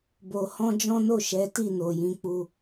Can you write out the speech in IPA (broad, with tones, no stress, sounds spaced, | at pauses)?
b o˧ h ɔ̃˦ d͡ʒ ɔ̃˦ n o˦˨ ʃ ɛ˨˦ t i˦˨ n o˨ j ĩ˨˦ k͡p u˧